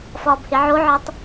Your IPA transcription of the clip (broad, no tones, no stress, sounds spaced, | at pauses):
f ɒː b h e ʕ o ʕ ɒ tˤ